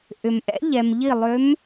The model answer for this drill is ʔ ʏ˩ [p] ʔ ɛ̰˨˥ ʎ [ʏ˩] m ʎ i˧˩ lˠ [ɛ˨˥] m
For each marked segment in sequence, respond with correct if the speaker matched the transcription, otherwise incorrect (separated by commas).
incorrect, incorrect, incorrect